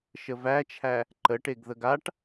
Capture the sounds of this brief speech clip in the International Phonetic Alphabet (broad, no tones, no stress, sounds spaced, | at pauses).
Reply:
ʃ ə v æ t͡ʃʰ æ | ǃ ə ʈ e ɡ ð ə ɡ a ʈ